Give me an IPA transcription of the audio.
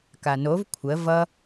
k a n o v kʷʰ ə v ʌ

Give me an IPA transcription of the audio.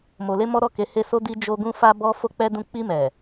m o˧ l e˦ m ɔ˦ ɾ ɔ˦˨ k e˨˦ h e˦ s o˦ d i˦ d͡ʒ o˧ ɡ ũ˧ f a˦ b ɔ˦ f o˦ k͡p ɛ˦ d ũ˦˨ k͡p i˧ m ɛ˨

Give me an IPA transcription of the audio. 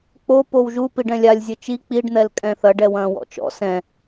k͡p o p o w ʒ u p i ɖ ɛ̃ lʲ a lʲ zʲ ɘ t͡ʃ i k͡p i ɖ n̪ ɛ l kʼ ɛ̃ θ ɐ ɖ ɛ w ɐ̃ː w ɔ̰ t͡ʃ ɔ̰ s ɛ̃

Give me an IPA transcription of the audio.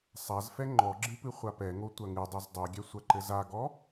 sˤ a z f ɛ ŋ͡ǃ ɔ ɡ͡ǁ ɨ p ɨ χʷ a p ɛ ŋ o tʷ ɐ ŋ ɨ dˤ u z dˤ u ɡʲ ɛ sʷ ɐ ǃ ɘ z a ɡ ɔ

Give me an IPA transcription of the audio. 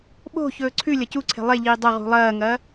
ɓ o̤ ç ɵː ǀʰ ʉ lʲ ɐ c u ǀʰ e̤ lˠ e ʎ iː dˤ ɐ ʁ ṳ lˠ ɐː ŋ ɐː

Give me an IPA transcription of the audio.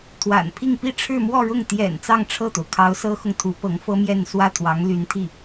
t̪ʰ w a̰˨˩ n pʰ i˥˧ ŋ p i˥˧ ʈ͡ʂʰ ɻ̩˥˧ m w ɔ˥˧ ɻ ʊ˥˩ ŋ t̪ j ɛ̰˨˩ n t͡s ɑ˥˧ ŋ ʈ͡ʂʰ ɤ˥˩ t̪ o˩ ʊ̯ kʰ ɑ˧˥ ʊ̯ s ɤ˥ x ʊ˨ ŋ t̪ʰ u˧˥ p ɤ˧˥ ŋ f ɤ˥ m j ɛ˥˧ n s w ä˥˩ t̪ʰ w ɑ˧˥ ŋ l y˧˥ n t̪ʰ i˥˩

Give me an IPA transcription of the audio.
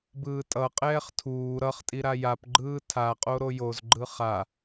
b ɯː tʼ ʌ qʼ ɛː χ tʰ uː ɾ ʌ χ tʼ i ɾ a j a p ɡ͡ǃ ɯː tʰ a qʼ o ɾ o j o z ɡ͡ǃ ɯ χ a

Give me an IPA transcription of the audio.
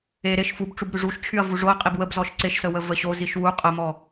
e ɾ e ʃ f u b ʈ͡ʂ u b ɾ y ʐ u ʃ t͡ɕʰ y ɐ̯ v u ʐ o ɐ̯ qʼ i b w ə b z ɔ ʃ ǀ e ʃ s ə w ə v ə ɕ o z i ʃ w u qʼ ə m ɔ

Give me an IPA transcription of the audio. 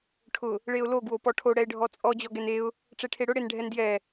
ʈʰ ʊ | ɭ e ʊ̯ l o ɡ w o p ɔ ʈʰ o ɽ ɛ ɪ̯ ɖʱ ɔ t͡sʼ ɔ d͡ʑ ɔ ɡ ɛ n e ʊ̯ | ʈ͡ʂ e ʈʰ e ɽ ʊ ɽ e n ɖʱ ɛ n d j ɛ

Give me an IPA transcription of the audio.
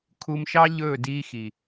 kʰ u˧ m ʃ ɑ˦ ʎ ɵː˦˨ d iː˧ x i˨

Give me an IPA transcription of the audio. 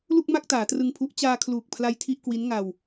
l u˥˩ k̚ m a˥˩ k̚ t aː˩˦ t r ɯ˧ ŋ pʰ u˦˥ ʔ t͡ɕ aː˧ kʰ l uː˨˩ k̚ pʰ l a˧ j tʰ i˥˩ ʔ k w i˦˥ n ŋ a˧ w

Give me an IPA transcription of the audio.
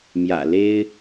m j ä̰˨˩ l e˥ ɪ̯

